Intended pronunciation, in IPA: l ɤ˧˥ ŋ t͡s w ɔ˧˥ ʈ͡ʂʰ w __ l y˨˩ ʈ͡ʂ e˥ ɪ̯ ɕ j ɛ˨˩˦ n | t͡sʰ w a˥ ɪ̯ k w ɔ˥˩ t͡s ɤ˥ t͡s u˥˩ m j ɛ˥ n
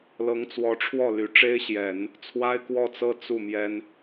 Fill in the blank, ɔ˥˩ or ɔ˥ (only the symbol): ɔ˥˩